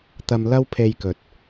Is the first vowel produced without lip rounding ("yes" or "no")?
yes